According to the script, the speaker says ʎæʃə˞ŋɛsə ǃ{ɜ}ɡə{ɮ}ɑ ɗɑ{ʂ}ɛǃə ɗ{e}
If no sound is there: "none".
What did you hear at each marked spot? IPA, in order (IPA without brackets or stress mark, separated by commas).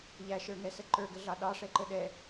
ə˞, ɮ, ʂ, ɛ